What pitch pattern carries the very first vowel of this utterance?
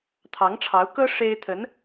rising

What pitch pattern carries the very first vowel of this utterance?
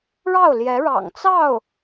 falling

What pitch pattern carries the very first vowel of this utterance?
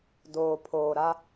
low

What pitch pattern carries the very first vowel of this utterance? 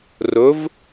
rising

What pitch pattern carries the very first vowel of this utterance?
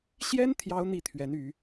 high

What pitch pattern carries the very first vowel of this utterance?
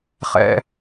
high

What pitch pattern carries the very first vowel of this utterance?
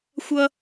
high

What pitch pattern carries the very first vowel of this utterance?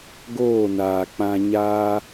falling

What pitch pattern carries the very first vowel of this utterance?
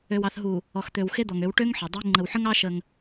low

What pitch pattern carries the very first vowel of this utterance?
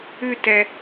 falling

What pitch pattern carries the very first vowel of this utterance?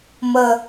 low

